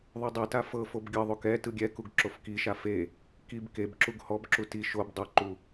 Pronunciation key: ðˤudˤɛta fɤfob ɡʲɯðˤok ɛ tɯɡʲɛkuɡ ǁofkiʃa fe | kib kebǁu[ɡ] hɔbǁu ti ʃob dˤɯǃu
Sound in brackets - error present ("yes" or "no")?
no